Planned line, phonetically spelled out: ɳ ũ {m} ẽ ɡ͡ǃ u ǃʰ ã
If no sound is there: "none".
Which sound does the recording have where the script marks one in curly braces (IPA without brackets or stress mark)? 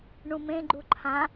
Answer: m